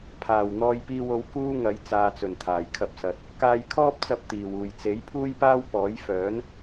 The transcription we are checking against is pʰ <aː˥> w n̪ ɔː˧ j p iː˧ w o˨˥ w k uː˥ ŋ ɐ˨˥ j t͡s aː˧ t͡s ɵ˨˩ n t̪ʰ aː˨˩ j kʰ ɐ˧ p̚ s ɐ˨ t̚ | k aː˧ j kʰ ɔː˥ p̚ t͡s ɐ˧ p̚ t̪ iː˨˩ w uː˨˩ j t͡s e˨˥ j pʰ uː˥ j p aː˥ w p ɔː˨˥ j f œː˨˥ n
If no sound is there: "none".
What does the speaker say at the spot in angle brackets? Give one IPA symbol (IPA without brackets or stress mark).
aː˨˩